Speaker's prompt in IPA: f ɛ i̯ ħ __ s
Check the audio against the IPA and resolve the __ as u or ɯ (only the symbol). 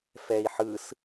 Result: ɯ